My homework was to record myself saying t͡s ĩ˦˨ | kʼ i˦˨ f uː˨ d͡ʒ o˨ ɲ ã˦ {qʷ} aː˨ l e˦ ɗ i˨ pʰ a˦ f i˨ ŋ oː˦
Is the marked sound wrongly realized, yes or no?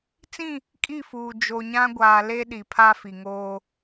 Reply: yes